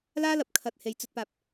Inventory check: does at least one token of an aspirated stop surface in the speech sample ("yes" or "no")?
yes